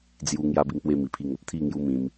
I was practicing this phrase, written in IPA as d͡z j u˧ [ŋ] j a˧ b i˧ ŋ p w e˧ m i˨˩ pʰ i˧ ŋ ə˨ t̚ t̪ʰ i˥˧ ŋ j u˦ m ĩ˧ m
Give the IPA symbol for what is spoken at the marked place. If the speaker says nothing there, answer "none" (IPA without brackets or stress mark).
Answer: ŋ